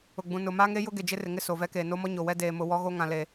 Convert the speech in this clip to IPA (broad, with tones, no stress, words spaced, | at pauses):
ʊ˨ɡ͡bũ˨ nʊ˨maː˦ŋe˦jʊ˦ ɡe˨d͡ʒɪ˦rɪ˨ŋɪ˦ so˨vɛ˦keː˨ no˦mɔ˦ɲo˨wɛ˦ deː˨mʊ˨ wɔ˦ɣo˦ ŋã˨le˨